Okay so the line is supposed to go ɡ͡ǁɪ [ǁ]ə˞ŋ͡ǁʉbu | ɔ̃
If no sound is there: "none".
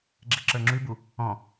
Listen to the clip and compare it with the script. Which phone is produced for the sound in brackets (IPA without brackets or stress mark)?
ǁ